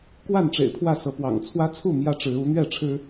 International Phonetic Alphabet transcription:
kwa˥˨nʈ͡ʂḛ˨˩ɪ̯pʰwä˥˨ sɤ˨˦pwɑ̰˨˩ŋ t͡sʰwä˦t͡sʰu˥˨ mjä˦ ʈ͡ʂɻ̩˨˦ u˨˦ n̪ɥɛ˥˨ʈ͡ʂʰɻ̩˦

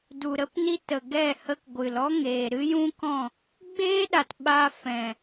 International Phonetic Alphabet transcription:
du˨ɾə˦pni˦ tə˨ɡɛ˦˨ hə˧kɡʷɨ˨lɔ˦ ŋeː˨ ɾɨ˦jũ˦kɔ̃˦˨ | ɡ͡beː˦ɗa˨t ɓa˧fɛ̃˨

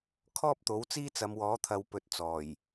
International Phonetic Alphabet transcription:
kʰɔː˥p̚t̪o˨˥wt͡siː˥t͡sɐ˨˧m wɔː˨˥t̪ʰɐ˨˧wpɵ˨˥t̚ t͡sɔː˨˩j

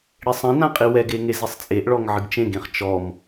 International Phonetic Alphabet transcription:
ɽesˤɛ̃nã qʼiwɛɡe ŋezisˤt͡sʼeʔɭɔŋ ʕɨɡt͡ʃẽɡẽχ t͡ʃɔm

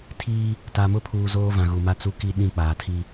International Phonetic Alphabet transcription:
tʰiː˦ | ta˨mʊ˦pʰuː˨ zoː˦vã˨ɣu˨ ma˦t͡su˦ki˦ ɗĩ˦˨k͡paː˨tʰi˦

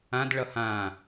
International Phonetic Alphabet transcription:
ãdɭʌ hã

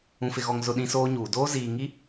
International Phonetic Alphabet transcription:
ũ˨fɪ˨ɣɔ˨ŋ zʊ˦˨ɗĩ˦soː˦ɲuː˨ doː˦ziː˨ ŋi˦

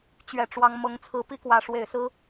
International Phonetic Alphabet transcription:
t͡ɕɥɛ˨˩ʈ͡ʂwɑ˨˦ŋ mɤ˨˦ŋt͡sʰɹ̩˨˦pi˥˨ kwä˨˦ʂwe˨˩ɪ̯sɹ̩˦

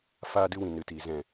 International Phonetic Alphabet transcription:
faː˧dɨ˧wĩ˨ nɨ˨tiː˨ zɛ̃˨

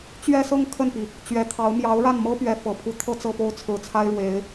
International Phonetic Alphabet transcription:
t͡ɕɥɛ˥˧sɤ˥˧ŋ kʰə˥˩npi˩ | t͡ɕɥɛ˧˥t̪ʰɑ˧˥ʊ̯ mjɑ˧˥ʊ̯ɻa˥˩nmɤ˥ pɥɛ˧˥ fɤ˨˩pʰu˧˥ t̪ʰɤ˥˧t͡sɤ˥˩po˥ʊ̯ t͡sʰɹ̩˨˩t͡sʰa˥ɪ̯ɻwe˧˥ɪ̯

